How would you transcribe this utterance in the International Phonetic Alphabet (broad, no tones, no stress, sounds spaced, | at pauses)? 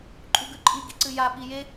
ǃʼ u ɡ ʉ ǃʼ i ɡ i ǀ ɨ j a ɓ i j e